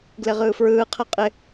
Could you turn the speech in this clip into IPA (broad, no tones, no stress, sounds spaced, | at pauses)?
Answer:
ɡ l ɪ ʁ ɯː f ɹ ɯː qʰ ɛ qʼ ɪ